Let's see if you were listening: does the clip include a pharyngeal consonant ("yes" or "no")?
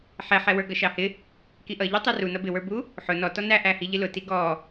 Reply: yes